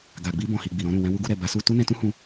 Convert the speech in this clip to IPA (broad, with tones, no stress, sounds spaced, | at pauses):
ɡ a˨ ɡ͡b i˧ b ɔ̃˨ h i˨ ɡ͡b i˨ ɾ ɔ̃˧ ɾ ũ˨ w ɛ̃˧ w u˧ ɡ u˧ ɾ ɛ˨ b a˨˦ s u˧ t u˦ n ɛ̃˧ t ũ˦ h ũ˧